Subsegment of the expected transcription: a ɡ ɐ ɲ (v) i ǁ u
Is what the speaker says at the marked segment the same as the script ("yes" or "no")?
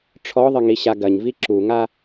yes